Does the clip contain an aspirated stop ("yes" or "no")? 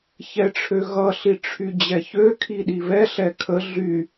yes